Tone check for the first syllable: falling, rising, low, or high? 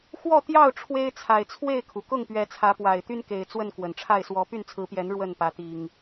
falling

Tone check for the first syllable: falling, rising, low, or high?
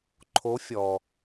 rising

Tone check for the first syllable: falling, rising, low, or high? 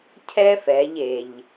high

